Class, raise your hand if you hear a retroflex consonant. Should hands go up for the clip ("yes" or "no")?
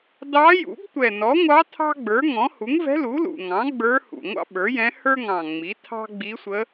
no